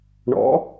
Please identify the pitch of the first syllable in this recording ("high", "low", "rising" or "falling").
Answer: rising